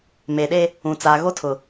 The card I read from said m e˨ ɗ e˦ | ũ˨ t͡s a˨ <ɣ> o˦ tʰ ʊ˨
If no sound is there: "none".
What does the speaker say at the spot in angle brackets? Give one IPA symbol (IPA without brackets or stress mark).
ɣ